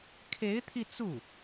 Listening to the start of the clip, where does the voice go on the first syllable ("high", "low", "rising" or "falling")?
rising